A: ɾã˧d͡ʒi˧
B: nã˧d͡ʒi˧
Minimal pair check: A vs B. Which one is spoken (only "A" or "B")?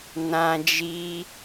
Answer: B